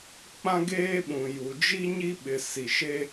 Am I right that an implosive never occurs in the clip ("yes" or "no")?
no